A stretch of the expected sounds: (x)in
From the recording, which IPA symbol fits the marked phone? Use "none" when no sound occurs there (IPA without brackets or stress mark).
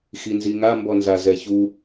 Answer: x